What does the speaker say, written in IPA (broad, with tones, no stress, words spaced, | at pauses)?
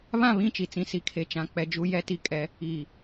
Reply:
βã˦˨βĩ˦˨t͡ʃi˨t͡sĩ˨ si˨kʰe˨t͡ʃã˨ k͡pɛ˨d͡ʒu˨jɛ˨ti˨ kʼɛ˨˦ | iː˨